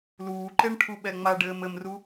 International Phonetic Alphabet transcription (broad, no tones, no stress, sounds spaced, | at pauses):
l uː ǃ e ɳ ʈʰ u ɓ ɛ ŋ͡m a ɖ ɘː m ɘ m r u